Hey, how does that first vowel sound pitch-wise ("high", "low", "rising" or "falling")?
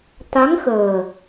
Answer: rising